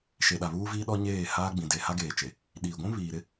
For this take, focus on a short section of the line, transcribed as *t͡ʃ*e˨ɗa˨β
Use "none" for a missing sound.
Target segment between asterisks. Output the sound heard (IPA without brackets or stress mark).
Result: ʃ